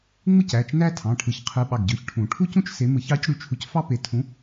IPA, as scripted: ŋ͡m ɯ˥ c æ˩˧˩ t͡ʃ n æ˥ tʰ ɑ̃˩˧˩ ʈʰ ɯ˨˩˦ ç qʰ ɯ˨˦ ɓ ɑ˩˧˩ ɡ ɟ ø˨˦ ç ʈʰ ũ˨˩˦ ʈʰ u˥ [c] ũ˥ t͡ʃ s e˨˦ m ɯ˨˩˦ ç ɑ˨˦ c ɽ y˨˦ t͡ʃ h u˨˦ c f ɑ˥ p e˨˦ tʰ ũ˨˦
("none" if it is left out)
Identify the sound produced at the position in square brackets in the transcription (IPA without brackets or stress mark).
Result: c